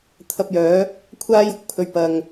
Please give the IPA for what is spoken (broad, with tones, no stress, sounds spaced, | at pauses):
t̪ʰ ɐ˧ p̚ j œː˨˥ | kʷʰ aː˥ j ʊ˥ k̚ pʰ ɵ˨ ɥ p ɐ˨ ŋ